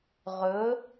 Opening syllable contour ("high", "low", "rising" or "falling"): rising